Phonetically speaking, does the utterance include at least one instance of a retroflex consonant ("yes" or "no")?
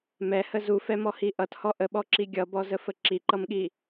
no